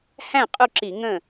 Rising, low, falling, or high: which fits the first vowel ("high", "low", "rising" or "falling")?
falling